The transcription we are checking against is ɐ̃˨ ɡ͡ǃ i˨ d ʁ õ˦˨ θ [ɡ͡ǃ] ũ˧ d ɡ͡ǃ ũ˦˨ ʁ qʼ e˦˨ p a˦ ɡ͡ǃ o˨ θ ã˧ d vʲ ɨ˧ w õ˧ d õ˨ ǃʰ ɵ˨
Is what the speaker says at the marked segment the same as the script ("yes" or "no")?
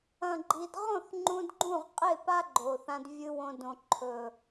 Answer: no